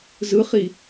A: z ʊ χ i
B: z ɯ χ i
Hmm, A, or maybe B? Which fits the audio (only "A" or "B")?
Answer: B